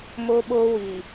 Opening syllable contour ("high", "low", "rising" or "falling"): high